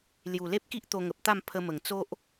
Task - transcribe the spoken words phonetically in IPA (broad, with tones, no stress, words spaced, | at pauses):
lju˨˩le˦p̚ki˦ʔ t̪o˧ŋə˨p̚t̪a˥˧m pʰə˧mə˨˩ŋ t͡so˦ʔ